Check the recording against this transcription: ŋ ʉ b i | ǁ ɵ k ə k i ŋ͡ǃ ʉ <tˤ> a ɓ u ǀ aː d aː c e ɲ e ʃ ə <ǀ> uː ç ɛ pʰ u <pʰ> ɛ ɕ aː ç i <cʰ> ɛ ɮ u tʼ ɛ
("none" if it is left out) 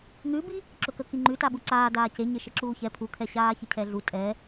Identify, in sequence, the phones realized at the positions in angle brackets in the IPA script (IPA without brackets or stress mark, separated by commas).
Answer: t, ǁ, kʰ, cʰ